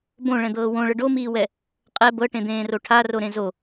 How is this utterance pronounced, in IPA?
b õ ɭ ɛ̃ d̪ ɤː w õ ɭ ə ɖ o m iː w ɛ | qʼ ɛ b ɤ ʈ ẽ d̪ ẽː r o ʈʰ a r o ɾ ẽ z o

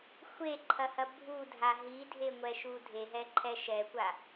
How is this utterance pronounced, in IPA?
xʷ e ǃʰ ɐ h ɐ bʱ u dʱ a ɦ i dʱ e ŋʷ ɛ ʃ u dʱ e ɦ ɛ ǃʰ ɛ ʃ ɛ kʷ a

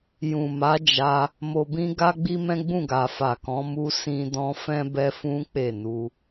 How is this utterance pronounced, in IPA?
j ũ˨ m a˨˦ d͡ʒ a˧ | m o˨ b ĩ˧ ɡ a˦ ɡ͡b i˦ m ɛ̃˦ ɡ͡b ũ˦˨ ɡ a˨ f a˨ k ɔ̃˨˦ m u˦ s ĩ˦ d ɔ̃˦ f ɛ̃˦ b ɛ˦ f ũ˦ k͡p e˦˨ n u˧

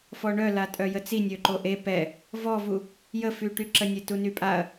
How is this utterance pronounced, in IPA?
f ɔ ɳ œ l a tʼ œ j ə t͡s i nʲ ø ǃ o ʔ e p ɛ | v ɔ v u | j ə f y ʈ y ǁ ə nʲ e t u n y pʼ a ɐ̯

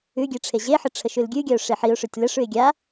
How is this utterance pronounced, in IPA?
ʉ ɡʲ e ʈ͡ʂʰ e ʑ e ħ ə ʈ͡ʂʰ ə ʃ ʉ l ɡʲ ʉ ɡʲ a ʊ̯ ʂ e ħ i ʊ̯ ʂ ʉ tʲ l ə ʂ ʉ ɪ̯ ɡʲ a

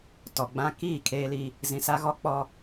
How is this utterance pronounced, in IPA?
t ɔ˨ ɡ͡b ã˦ k iː˦˨ kʰ eː˦ l i˦ | z ĩ˨ s a˦ ɣ ɔ˦ k͡p ɔ˦

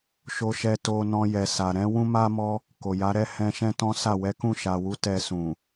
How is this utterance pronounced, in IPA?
ʃ o˧ ʃ ɛ˧ t o˧ n ɔ̃˧ j ɛ˨ s a˨ ɾ ɛ̃˨˦ w ũ˦ m a˦ m ɔ˦ | k o˨ j a˨˦ ɾ ɛ˦ h ɛ̃˧ ʃ ɛ̃˦ t ɔ̃˦ s a˦˨ w ɛ˨˦ k ũ˦˨ ʃ a˨ w u˨˦ t ɛ˧ s ũ˨

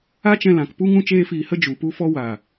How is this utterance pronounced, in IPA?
a˦ t͡ʃ ɛ̃˧ l ã˨ k p u˦ ŋ ũ˦ t͡ʃ eː˦ f iː˧ h ə˦ d͡ʒ u˨ p u˦ f ɔ˦ w a˨

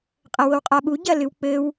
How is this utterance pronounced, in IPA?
qʼ ɐ w o w qʼ a ɓ u ɟ ɐ l ɨ w k͡p ɘ w

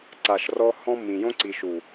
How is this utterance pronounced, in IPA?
ǀ a˨ ʃ r ɔ˧ h ɔ̃˦ mː ĩ˨ j õ˦ ǀ i˨ ʃ u˨

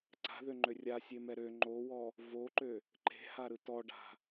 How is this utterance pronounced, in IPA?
ǀ a̤ ð ø ŋ͡ǃ ø rʲ a sʲ e m ɛ ɾ ø ŋ͡ǃ o w ɔ | v o ǃ ø | ǃ e̤ h a ɾ ɯ t ɔ ɖ a̤

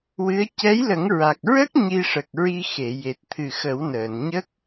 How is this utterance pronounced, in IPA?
w ɨ˧˥ ə̯ c ɛ˧˥ j l ə˨˩˦ ŋ ɹ a˨˩ k̚ ɹ ə˦˥ k̚ ɲ i˧ ʂ ə˨˩ k̚ ɹ i˧ x e˨˩˨ j e˨˩ t̚ t̪ʰ ɨ˨˩ x ə˨˩˦ w n əː˨˩˨ n ɲ ə˦˥ k̚

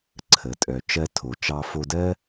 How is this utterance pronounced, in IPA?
ǀʰ ə˩ tʼ œ˩ t͡ʃ ɜ˧ tʰ o˩ t͡ʃ ɑ˧ f o˧ d ɜ˥

